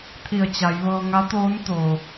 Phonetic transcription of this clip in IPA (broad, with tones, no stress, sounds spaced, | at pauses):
t̪ʰ i˧˩ ə̯ t͡ɕ a˩˧ j ʋ ɤː˧ ŋ a˧˥ t̪ oː˧˥ n t̪ oː˩